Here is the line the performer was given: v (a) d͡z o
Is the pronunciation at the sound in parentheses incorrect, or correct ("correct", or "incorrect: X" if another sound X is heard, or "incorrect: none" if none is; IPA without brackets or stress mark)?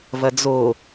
incorrect: ɐ